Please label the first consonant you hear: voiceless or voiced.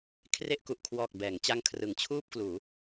voiceless